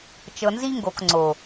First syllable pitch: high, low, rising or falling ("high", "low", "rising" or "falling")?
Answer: low